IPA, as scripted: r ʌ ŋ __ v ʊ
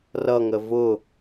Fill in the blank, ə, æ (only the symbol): ə